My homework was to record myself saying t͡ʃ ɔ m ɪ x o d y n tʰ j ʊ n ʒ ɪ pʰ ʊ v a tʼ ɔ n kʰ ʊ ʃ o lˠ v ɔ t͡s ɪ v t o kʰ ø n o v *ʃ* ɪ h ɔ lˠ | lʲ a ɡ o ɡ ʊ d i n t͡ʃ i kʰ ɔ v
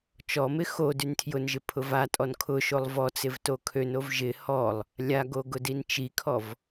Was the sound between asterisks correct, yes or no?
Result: no